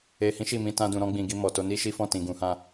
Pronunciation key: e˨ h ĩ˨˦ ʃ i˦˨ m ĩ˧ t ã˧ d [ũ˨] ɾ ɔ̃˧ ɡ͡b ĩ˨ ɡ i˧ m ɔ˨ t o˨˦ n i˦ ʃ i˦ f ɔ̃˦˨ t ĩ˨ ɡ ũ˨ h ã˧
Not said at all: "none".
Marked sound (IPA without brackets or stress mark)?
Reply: ũ˨